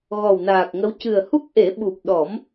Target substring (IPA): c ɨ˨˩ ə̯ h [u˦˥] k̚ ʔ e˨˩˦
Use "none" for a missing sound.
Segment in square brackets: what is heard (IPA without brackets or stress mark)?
u˦˥